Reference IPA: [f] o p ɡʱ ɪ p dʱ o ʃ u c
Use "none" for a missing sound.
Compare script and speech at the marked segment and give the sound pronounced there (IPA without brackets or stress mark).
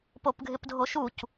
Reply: p